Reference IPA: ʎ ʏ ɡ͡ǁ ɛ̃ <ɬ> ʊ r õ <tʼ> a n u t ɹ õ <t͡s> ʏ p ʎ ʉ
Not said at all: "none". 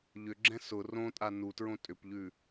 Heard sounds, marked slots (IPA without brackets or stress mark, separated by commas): s, tʼ, tʼ